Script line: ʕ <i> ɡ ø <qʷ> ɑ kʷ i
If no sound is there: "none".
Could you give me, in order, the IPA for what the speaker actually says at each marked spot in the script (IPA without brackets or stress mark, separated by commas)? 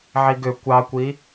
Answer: i, kʷ